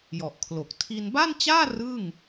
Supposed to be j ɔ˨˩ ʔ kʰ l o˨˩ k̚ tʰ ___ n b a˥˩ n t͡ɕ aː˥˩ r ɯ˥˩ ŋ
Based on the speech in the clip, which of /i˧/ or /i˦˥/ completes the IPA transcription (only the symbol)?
i˧